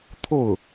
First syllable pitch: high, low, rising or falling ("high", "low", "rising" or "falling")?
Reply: falling